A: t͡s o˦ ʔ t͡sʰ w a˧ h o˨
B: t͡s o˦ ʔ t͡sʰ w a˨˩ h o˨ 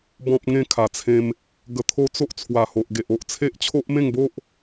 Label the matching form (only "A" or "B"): B